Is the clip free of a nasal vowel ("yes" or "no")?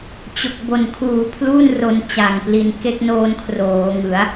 yes